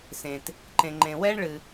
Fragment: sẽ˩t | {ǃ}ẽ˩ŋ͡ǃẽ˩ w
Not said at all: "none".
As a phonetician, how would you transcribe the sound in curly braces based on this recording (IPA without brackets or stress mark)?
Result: ǃ